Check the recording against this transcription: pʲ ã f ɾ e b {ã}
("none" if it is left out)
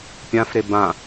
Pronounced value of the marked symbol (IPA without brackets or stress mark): ã